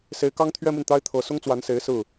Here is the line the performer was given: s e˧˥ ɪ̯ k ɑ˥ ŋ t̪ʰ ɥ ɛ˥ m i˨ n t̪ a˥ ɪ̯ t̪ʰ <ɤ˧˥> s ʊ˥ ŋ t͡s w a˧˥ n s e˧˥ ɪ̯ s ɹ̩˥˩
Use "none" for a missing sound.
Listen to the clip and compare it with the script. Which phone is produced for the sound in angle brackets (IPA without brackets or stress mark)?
ɤ˧˥